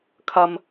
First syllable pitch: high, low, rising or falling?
low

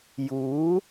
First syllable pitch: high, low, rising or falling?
rising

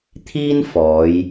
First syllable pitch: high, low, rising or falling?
high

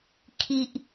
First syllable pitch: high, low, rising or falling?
high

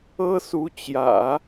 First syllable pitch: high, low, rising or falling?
high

